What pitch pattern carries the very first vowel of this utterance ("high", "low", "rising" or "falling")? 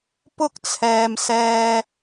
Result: high